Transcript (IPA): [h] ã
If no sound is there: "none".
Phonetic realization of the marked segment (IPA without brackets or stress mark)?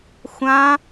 xʷ